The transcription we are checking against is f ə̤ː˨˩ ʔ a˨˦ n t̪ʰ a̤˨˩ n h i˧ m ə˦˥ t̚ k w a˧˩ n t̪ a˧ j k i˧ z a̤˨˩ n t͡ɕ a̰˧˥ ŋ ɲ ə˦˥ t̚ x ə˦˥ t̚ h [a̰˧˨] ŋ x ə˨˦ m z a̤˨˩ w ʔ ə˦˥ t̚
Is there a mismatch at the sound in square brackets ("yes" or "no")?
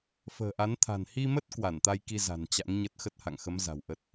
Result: no